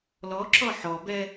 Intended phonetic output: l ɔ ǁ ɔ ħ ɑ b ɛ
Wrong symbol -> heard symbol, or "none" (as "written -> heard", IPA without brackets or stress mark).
ɑ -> ɔ